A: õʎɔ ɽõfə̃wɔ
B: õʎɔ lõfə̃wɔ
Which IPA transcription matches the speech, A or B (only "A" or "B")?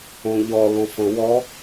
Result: B